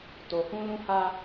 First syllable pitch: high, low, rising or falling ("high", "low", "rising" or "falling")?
low